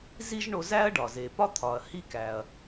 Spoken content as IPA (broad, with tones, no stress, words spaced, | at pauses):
zi˥ʒɳo˧zæ˥ɐ̯ ɖɒ˩ze˩pɒ˥ t̪ʰɒ˩ɐ̯ hi˥ kæ˩ɐ̯